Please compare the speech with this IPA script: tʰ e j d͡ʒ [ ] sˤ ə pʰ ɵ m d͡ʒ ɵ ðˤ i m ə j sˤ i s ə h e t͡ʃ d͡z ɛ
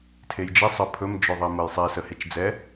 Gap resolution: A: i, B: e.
A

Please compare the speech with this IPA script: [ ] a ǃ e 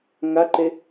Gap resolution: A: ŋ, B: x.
A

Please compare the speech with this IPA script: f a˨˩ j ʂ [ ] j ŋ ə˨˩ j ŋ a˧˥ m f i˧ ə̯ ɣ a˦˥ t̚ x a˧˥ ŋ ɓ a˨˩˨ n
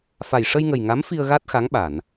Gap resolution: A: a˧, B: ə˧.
B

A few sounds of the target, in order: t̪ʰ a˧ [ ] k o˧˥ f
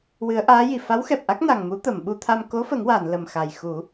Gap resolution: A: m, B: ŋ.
A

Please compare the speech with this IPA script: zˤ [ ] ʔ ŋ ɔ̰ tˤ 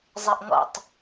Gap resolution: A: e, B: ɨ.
A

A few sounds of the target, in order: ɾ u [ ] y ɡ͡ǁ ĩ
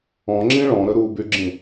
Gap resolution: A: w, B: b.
B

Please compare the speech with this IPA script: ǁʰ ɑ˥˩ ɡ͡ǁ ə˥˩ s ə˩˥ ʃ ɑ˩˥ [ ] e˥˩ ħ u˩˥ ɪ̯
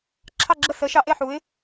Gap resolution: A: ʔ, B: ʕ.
A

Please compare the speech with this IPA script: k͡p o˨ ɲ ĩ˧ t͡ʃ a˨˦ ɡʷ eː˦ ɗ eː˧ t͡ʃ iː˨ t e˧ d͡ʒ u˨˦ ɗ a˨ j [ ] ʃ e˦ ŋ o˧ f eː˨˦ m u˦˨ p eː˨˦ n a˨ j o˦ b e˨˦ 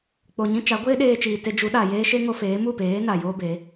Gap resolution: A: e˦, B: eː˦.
B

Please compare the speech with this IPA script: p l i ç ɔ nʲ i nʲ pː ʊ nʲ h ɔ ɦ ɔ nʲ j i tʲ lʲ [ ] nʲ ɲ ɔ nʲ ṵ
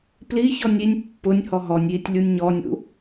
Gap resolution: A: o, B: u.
B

